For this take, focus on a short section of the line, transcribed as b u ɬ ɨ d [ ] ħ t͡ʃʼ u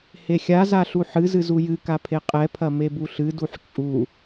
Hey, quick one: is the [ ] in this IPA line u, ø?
u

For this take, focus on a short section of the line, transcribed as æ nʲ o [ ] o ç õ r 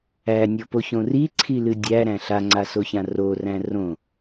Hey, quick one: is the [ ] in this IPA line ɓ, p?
p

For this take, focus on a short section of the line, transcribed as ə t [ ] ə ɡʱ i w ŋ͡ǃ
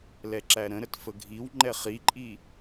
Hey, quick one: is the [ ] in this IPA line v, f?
f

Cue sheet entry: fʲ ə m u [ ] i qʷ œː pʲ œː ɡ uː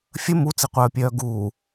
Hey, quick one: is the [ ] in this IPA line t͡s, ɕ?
t͡s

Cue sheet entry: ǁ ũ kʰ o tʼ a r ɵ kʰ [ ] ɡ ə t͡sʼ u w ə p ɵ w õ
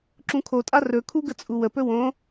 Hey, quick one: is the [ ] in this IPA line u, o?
u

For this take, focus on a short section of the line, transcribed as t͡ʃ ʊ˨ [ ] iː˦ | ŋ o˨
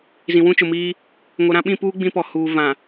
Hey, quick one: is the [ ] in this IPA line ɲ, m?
m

